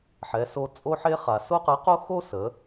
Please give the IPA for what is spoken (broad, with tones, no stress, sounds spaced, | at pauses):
ħ ɛ˩˧ s o˧ t͡sʼ o˧ ħ e˧ χ a˩ s o˥ q ə˧˥ q o˥ x o˥ s ə˩˧